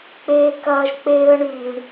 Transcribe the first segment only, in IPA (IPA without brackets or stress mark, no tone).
k͡p